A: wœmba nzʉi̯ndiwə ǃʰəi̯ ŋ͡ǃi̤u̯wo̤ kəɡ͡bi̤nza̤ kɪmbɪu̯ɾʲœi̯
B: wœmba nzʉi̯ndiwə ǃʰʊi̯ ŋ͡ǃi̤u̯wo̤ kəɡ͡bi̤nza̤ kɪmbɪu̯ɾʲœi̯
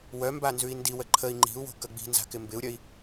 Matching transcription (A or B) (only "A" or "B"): A